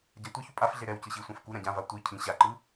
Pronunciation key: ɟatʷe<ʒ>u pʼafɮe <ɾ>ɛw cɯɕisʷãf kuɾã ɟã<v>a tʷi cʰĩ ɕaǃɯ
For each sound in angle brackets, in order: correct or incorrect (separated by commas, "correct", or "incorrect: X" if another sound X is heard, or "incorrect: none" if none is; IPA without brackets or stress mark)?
incorrect: ç, correct, correct